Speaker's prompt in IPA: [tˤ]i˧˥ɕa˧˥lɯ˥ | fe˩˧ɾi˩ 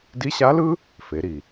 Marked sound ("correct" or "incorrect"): incorrect